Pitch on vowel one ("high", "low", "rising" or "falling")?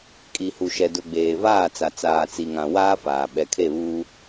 low